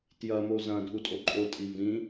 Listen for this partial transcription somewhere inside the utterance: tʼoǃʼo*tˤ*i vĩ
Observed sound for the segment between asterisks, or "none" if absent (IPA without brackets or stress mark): tʼ